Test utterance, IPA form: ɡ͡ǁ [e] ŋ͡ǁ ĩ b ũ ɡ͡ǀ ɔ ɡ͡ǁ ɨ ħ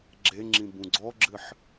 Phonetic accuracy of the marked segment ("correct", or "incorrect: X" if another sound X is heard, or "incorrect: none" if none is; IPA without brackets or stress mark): correct